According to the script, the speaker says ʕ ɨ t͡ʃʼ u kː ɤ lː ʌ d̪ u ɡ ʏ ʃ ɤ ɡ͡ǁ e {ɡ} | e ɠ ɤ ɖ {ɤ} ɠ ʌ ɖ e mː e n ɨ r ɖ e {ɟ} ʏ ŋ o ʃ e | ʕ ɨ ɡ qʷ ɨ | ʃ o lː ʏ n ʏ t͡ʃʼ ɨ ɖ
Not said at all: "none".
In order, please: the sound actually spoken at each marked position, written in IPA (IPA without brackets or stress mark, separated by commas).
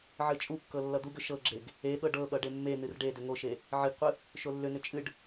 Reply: ɡ, ɤ, d